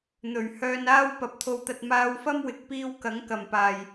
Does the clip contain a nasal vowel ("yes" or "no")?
no